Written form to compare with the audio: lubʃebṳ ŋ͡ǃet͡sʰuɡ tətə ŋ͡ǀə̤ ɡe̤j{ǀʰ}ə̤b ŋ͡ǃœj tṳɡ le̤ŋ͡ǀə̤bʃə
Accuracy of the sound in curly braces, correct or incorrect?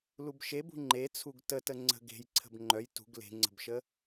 correct